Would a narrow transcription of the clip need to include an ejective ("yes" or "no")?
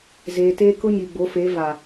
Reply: no